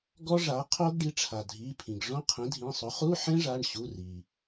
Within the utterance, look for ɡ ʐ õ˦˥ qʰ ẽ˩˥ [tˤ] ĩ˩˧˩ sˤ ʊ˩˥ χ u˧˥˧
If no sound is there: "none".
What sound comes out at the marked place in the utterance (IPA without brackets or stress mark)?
dʱ